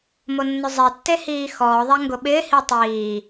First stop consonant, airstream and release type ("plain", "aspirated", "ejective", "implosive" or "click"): plain